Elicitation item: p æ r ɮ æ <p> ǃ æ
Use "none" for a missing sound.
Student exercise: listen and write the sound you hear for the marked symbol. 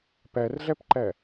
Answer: p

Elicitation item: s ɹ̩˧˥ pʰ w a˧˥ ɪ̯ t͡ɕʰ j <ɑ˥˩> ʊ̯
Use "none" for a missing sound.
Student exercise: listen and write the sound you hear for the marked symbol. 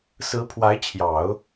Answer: ɑ˨˩˦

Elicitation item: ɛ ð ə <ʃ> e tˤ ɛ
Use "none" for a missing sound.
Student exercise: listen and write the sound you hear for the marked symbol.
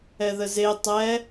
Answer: z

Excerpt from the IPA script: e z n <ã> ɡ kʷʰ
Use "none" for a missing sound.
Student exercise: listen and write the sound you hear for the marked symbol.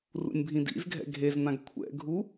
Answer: ã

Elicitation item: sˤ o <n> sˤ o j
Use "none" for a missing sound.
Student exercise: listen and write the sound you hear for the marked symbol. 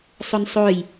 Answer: n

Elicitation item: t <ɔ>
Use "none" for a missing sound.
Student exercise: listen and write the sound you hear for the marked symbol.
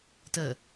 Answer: ə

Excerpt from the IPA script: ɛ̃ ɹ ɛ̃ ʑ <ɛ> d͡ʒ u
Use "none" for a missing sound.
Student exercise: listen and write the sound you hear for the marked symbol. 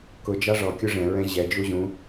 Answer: ɛ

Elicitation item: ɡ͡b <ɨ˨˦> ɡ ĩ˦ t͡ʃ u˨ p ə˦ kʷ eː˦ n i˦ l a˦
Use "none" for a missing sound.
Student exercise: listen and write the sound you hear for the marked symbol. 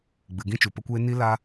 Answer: ɨ˨˦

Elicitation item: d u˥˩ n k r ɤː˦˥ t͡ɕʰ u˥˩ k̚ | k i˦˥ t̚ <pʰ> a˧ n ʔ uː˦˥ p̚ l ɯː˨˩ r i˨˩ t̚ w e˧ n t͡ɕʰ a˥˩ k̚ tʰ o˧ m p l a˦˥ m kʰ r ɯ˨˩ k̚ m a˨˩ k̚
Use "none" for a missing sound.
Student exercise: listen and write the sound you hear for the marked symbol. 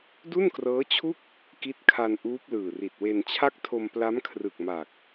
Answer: kʰ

